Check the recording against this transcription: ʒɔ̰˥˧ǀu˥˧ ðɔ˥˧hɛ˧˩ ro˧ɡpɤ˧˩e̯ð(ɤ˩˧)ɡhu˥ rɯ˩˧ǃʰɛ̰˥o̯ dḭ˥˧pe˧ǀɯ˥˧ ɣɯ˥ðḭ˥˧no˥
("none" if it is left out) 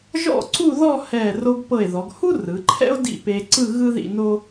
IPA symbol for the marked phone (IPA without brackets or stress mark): ɔ˩˧